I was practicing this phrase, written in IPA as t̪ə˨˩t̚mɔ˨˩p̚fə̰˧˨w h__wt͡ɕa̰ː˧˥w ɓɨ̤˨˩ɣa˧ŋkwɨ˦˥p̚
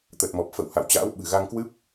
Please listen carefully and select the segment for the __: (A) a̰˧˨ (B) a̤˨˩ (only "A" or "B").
A